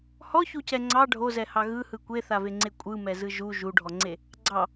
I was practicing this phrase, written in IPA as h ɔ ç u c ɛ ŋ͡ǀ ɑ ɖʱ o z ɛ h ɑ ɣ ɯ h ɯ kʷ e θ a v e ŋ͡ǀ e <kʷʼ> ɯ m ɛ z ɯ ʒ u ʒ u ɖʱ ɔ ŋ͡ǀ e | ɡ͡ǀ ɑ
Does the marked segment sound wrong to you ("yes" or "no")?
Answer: no